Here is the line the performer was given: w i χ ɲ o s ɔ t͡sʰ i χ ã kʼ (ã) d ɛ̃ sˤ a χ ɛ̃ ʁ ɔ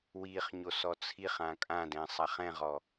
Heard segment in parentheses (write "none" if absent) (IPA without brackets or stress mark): ã